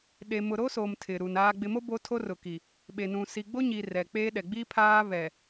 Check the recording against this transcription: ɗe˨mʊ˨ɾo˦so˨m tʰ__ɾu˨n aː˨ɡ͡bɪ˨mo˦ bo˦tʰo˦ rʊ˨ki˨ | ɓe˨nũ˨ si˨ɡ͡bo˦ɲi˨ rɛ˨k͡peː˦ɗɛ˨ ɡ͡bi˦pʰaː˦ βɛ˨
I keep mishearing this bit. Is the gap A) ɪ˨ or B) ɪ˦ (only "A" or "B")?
A